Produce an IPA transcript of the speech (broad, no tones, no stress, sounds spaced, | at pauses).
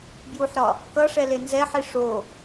b j u ħ ɾ ɒ | k ʌ ʂ ɛ l e n z ɛ ħ i ʂ o